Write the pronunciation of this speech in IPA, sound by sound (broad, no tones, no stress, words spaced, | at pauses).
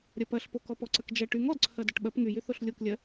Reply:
ɾʲɐpɐɬ pokɔpɔǀɐk d͡ʒɐ ʈyŋ ɔdǀʰɐ dɐʈɓɐp ŋyjy θoɬlʲoklʲɐ